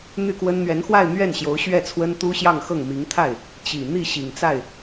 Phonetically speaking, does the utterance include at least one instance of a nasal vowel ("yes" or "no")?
no